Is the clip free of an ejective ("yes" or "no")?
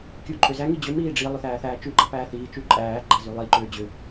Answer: no